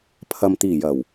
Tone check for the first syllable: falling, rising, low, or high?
low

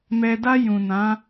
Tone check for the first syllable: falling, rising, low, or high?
low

